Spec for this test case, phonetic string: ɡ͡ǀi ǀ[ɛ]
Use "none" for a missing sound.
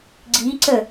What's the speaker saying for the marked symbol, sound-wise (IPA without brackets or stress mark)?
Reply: ə